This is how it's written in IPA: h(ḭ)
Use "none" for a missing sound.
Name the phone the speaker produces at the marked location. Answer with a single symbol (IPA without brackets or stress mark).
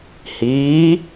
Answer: i